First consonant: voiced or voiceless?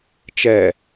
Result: voiceless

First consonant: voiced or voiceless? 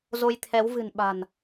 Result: voiced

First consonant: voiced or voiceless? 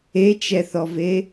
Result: voiceless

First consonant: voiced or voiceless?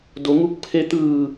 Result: voiced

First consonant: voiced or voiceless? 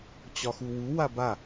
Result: voiceless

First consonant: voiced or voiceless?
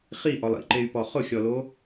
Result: voiceless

